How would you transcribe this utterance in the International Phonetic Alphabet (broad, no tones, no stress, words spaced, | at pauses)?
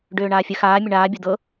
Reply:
ɖøːɳaːfʲə xaː mʲəɳaː bʲod̪ɤ